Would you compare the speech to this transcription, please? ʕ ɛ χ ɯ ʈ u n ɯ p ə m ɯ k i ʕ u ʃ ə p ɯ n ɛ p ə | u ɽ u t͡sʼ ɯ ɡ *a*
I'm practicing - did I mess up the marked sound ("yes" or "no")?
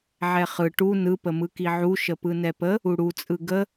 yes